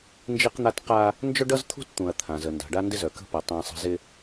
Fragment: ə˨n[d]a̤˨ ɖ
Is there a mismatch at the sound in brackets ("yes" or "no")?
no